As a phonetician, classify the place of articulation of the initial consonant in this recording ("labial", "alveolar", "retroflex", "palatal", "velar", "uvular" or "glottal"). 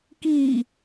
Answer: velar